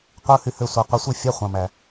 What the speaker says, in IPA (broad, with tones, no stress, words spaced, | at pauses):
qʷɯ˧˥˧hy˥˩ hø˥˩sʷɑ˨˦ qʷi˩˧˩sʷi˥˩fʲɑ˧˥˧ χʷɑ̃˩˧˩mæ˩